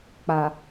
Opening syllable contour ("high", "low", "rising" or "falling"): low